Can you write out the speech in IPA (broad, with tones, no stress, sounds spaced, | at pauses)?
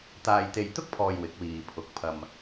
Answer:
t̪ aː˨ j t̪ e˨ j t̪ ʊ˥ k̚ pʰ ɔː˨ j w ɪ˨˥ k̚ w iː˨ pʰ ʊ˨˥ k̚ pʰ ɐ˧ m